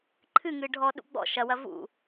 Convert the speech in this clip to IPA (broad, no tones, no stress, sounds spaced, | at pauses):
ǃʰ ɨ ŋ ɨ ɖʱ ɔ ɗ ṵ ɡ͡b ɔ̰ ʃ ɐ w ɐ v ṵ